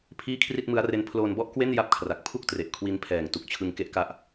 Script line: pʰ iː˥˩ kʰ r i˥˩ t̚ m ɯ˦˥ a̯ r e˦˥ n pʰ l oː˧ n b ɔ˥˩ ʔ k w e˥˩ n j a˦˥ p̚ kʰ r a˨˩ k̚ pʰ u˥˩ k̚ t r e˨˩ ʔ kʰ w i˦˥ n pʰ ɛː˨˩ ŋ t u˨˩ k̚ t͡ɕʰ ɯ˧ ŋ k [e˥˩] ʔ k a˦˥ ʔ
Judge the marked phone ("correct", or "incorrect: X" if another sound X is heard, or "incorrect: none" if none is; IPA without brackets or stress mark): incorrect: e˦˥